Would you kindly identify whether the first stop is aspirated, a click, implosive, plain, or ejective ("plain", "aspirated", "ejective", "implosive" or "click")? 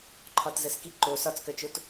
click